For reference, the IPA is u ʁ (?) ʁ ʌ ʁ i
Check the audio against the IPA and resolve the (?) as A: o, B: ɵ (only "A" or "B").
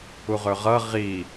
B